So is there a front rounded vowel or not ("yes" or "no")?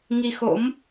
no